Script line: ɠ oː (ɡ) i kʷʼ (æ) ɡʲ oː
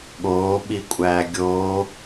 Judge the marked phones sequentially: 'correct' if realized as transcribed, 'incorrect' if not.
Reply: incorrect: ɓ, incorrect: æː

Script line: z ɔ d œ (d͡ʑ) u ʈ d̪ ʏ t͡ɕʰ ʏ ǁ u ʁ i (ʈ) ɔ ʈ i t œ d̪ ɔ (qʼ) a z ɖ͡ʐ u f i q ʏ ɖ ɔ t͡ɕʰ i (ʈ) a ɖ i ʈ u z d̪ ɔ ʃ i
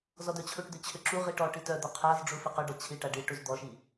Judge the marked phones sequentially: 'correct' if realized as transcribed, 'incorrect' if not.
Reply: incorrect: t͡ɕʰ, correct, incorrect: qʰ, correct

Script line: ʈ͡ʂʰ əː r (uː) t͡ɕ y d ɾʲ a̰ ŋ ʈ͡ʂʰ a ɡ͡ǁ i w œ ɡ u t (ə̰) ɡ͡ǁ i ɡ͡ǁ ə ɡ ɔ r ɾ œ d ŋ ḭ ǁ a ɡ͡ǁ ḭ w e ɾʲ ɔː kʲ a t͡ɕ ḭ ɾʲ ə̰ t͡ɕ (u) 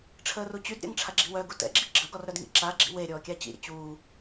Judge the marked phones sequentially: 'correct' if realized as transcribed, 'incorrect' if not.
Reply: incorrect: u, incorrect: ɛ̰, incorrect: uː

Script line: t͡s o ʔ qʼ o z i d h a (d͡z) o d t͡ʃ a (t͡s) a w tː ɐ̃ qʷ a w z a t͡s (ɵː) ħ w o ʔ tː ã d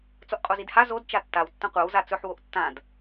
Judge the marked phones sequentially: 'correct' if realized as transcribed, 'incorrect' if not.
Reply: incorrect: z, incorrect: tː, incorrect: ɵ

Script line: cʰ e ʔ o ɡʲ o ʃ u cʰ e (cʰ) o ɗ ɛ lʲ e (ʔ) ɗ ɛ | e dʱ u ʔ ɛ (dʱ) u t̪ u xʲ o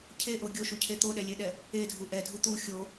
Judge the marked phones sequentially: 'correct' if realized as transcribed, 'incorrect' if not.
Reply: incorrect: t̪, incorrect: none, correct

